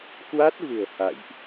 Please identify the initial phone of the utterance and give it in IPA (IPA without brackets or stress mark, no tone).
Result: k